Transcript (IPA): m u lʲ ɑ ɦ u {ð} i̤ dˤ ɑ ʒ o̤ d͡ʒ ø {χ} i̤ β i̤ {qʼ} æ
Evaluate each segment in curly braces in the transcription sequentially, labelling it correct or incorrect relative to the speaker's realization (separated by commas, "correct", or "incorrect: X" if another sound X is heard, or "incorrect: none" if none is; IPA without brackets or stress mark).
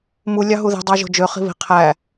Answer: correct, correct, incorrect: qʰ